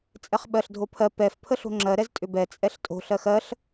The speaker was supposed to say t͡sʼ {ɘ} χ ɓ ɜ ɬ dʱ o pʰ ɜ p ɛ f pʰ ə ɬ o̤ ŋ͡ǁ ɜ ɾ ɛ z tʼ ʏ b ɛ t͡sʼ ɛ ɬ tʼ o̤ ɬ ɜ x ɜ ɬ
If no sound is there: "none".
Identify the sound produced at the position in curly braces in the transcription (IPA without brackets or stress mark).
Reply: ɛ